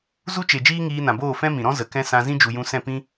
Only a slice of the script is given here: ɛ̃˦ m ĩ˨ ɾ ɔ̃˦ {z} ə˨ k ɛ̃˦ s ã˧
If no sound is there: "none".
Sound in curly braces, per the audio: z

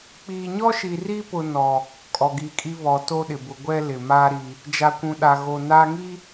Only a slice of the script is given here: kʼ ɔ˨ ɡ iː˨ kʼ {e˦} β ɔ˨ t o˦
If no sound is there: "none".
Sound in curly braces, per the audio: i˦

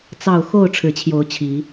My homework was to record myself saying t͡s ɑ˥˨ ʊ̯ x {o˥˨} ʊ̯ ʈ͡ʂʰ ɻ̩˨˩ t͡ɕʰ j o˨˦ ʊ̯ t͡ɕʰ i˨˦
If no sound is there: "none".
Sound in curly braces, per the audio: o˥˨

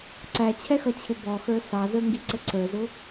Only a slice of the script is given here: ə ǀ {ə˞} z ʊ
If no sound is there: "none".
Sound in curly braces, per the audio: ə˞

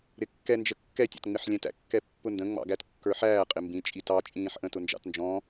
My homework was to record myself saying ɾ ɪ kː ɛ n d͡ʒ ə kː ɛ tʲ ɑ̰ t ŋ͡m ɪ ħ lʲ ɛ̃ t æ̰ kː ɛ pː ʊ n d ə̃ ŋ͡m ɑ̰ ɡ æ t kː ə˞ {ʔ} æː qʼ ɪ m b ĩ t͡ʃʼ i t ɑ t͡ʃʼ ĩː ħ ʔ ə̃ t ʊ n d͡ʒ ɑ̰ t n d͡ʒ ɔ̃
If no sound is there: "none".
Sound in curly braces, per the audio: ħ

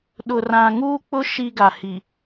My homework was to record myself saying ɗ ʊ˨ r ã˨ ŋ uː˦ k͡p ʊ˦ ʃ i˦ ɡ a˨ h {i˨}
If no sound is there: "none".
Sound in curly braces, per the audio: i˨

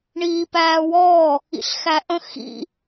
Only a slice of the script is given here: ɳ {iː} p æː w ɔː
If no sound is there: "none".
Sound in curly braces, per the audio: iː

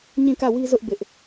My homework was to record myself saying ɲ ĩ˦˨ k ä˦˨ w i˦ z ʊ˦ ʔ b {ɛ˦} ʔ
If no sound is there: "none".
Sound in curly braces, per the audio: ɪ˦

